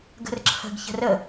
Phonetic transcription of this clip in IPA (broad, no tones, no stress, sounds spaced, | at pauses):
ɡ ə̤ r ǁʰ ə̤ ɡ ç ə̤ r ə